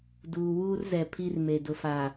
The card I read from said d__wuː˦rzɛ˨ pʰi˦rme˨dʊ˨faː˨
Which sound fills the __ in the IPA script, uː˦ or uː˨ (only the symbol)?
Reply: uː˨